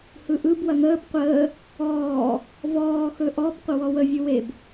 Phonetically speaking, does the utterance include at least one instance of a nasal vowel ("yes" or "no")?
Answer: no